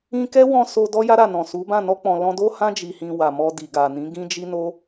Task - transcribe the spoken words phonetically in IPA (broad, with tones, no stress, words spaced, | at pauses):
ĩ˧kɛ˦wɔ̃˧ so˧dɔ˦ ja˦ɾa˦˨nɔ̃˨su˨˦ bã˦˨nɔ˧k͡pɔ̃˨ lɔ̃˧do˦hã˦ d͡ʒi˧hĩ˧ wa˨mɔ˧ di˨ɡa˨nĩ˨˦ ɡĩ˦d͡ʒi˦no˦